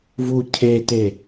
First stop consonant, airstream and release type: aspirated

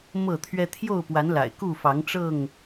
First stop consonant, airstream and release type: aspirated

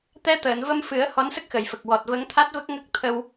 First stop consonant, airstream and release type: plain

